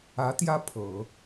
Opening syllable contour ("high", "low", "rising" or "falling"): rising